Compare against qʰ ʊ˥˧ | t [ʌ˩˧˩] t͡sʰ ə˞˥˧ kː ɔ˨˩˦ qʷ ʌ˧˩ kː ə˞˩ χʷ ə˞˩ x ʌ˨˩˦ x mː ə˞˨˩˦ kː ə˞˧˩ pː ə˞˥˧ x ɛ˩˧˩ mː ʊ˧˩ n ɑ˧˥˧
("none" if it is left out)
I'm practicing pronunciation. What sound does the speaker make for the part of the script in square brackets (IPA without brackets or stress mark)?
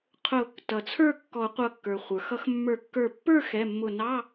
ʌ˩